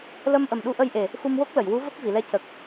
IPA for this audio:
lə˧mʔə˨˩m ɗu˧˥ʔə˧jʔe˨˩ | xu˧mwo˦˥k̚lə˨˩˨jwu˧˥ və˦˥k̚vi˨˩˨lɛ˧˥ cə˨˩k̚

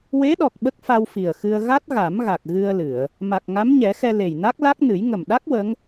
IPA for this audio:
we˧˥ɗɔ˨˩k̚ ɓə˦˥k̚fa˧wfi˨˩ə̯xɨ˧ə̯ ɣa˦˥t̚ ɣa˨˩˦mɣa˨˩k̚ ɣɨ˧ə̯lɨ˨˩˨ə̯ | ma˨˩k̚ŋa˧˥mɲɛ˨˩˦xɛ˧ le˨˩jna˦˥k̚la˦˥k̚nɨ˨˩˦j ŋə˨˩mɗa˦˥k̚ wə˧˥ŋ

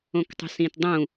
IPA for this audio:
õktˤṳsĩtdˤũ

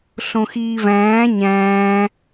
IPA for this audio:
ɬõxiːvæ̃ː ɲæ̃ː

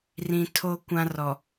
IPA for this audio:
rĩ˨tʰo˦kʷã˦rɔ˨

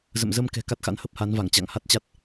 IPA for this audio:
zə̰˧˨m zə˧mkɛ̤˨˩ ka˦˥t̚xa̰˧˥n hə˦˥p̚ha˨˦nva˧˩ŋ t͡ɕa̰˧˨ŋha˦˥t̚t͡ɕa˦˥t̚

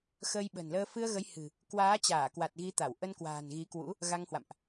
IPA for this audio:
xəː˧jɓə̤˨˩nləː˧ fɨ˧ə̯ɣə˨˦j hɨ̤˨˩ | kwaː˨˦t͡ɕaː˧˩kwa˨˩t̚ ɣi˨˦t̪a˧˩w ʔə˧nkwa̤ː˨˩n ɣi˨˦kwṵ˧˥ | ɣa˧ŋhwa̰˧˨mʔ

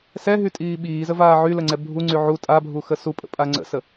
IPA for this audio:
sɛɦytʼiː ɓiːzəvaː ʕyləŋ͡ǀɛ bʱuŋ͡ǀy ʕu tʼabʱuxə supʼə̰pʼa ŋ͡ǀə̰sə

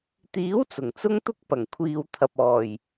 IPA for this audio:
t̪iː˨˥wt͡sʊ˨˩ŋt͡sʊ˧ŋt̪ʊ˧k̚ pɐ˨˩ŋkʷʰiː˨wt̪ʰɐ˨p̚ɔː˨˩j

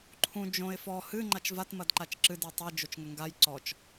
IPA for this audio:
ǃʰũ d͡ʒõɪ̯ fɔ hɨ ŋ͡ǃat͡ʃvat mɐdǃat͡ʃǁɨ dutˤɘ d͡ʒot͡ʃŋɘŋɡaj ǀɔt͡ʃ

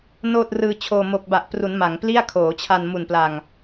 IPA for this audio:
noː˥˩t̚rɯː˧t͡ɕʰoː˧ mo˨˩k̚ba˨˩ʔpru˩˦n ma˩˦ŋ pli˥˩a̯kʰoː˩˦t͡ɕʰa˧n mu˨˩npla˨˩ŋ

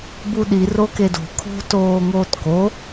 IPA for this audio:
buɗi rokedo̤ kʰo̤ toːŋoːtko

